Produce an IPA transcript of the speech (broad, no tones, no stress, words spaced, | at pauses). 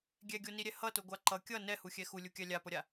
ɡʲɛɡʲoniɾʲɛ hʌtoɡʷa ǃʌ kʲʌ nɛhuxʲɛ xulʲukʲa lʲapʌɾʲa